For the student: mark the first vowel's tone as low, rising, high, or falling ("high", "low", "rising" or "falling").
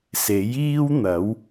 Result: rising